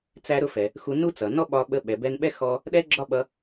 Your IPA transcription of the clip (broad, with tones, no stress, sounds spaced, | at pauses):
t͡s æ˧ ɾ ʊ˧ f ɛ˩ | x u˧ n u˥ t͡s ʌ˩ n ɔ˥ ɓ ɒ˧ ɓ ə˧ ɓ ɛ˩ b ɛ˧ n ɓ ɛ˥ x ɔ˧ | ɗ ɛ˥ ɡ͡ǁ ɒ˥ ɓ ʌ˧